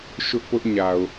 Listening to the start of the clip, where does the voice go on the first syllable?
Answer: high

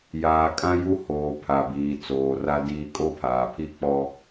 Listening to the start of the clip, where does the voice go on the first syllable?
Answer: low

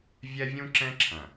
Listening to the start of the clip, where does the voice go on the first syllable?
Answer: high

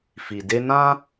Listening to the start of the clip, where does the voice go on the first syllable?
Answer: low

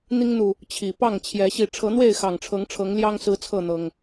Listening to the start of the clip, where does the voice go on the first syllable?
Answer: high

